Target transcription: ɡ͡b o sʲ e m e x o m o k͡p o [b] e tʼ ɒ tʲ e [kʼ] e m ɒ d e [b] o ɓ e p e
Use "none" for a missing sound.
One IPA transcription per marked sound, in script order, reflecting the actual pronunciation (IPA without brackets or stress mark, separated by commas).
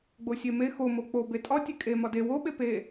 b, kʼ, w